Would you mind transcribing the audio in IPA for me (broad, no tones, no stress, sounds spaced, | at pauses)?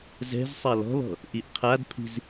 z ɛ̤ z sˤ a l ɔ̤ l ɔ̤ | ʔ i ʔ qʰ a d pʰ i̤ z